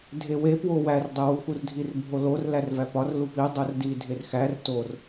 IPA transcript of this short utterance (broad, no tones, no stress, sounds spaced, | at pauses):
dʱ e w e p w o w æ r dˤ e w u x u r dʱ i r bʱ o l o r l æ r v æ p ɒ r l u p i dˤ o r d i dʱ e r x æ r t o r